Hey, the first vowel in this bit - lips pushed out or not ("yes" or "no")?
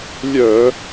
yes